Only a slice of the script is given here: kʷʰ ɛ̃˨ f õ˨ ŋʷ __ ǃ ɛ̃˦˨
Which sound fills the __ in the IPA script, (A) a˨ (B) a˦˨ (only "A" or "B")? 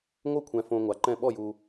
A